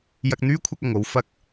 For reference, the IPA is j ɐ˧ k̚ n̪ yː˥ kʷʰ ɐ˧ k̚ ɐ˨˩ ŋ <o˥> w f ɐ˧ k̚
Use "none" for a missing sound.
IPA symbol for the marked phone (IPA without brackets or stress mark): o˧